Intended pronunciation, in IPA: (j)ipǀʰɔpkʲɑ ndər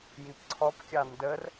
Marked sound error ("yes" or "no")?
no